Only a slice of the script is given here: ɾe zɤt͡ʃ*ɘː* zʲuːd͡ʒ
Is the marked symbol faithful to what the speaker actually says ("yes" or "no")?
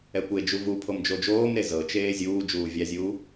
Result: no